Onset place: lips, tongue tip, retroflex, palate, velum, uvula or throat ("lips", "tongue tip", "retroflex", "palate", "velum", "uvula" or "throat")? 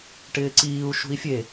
retroflex